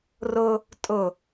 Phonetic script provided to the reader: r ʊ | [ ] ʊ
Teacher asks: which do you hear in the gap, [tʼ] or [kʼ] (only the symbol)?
tʼ